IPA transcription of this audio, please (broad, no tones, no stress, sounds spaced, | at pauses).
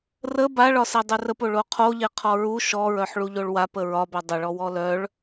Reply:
r ə b a ɭ ɒ s e dˤ ʉ r ə p o ɭ o qʰ o ʎ e qʰ ɔ ɹ u ʃ ɔ ɹ œ ħ ɭ u ʎ o ɭ w a p ə ɹ ɒ b œ dˤ ə ɭ ɔ w ɔ l œ ɭ